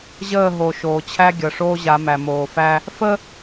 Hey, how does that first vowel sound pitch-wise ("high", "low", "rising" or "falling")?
falling